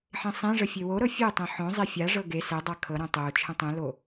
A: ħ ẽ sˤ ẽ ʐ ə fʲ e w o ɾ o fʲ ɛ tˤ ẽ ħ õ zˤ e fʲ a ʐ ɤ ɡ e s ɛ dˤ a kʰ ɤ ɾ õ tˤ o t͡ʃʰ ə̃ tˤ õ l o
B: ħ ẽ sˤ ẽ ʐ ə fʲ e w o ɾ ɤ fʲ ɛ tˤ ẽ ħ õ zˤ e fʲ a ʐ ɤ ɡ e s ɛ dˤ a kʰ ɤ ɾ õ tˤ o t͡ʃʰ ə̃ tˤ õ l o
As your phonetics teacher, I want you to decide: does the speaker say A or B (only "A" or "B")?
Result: B